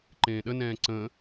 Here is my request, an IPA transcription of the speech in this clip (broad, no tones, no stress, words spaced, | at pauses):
ǃẽːɗənɛ̃ː ǀə̃